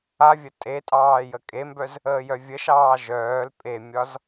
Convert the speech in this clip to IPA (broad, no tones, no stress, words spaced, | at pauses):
avʲə tʼetʼɑː jəkʼembœz | əːjœvʲəʃɑː ʒœːl pʼemʲɒz